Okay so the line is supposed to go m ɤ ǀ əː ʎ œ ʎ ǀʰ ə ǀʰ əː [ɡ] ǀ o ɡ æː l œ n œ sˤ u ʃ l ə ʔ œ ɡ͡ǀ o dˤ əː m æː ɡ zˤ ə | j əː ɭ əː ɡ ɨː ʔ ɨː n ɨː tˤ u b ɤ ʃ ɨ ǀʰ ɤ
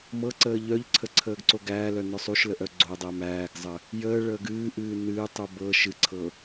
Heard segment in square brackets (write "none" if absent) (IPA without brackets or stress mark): ɡ